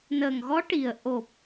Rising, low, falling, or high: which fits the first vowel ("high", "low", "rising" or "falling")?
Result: low